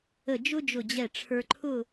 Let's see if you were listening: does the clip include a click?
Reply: yes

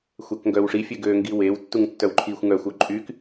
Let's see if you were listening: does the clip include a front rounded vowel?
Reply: yes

